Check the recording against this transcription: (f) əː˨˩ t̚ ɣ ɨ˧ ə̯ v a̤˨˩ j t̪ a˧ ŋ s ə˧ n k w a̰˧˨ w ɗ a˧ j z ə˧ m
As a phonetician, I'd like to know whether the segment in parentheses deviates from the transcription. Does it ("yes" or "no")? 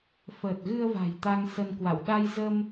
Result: no